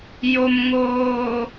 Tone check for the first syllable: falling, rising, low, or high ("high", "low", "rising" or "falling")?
low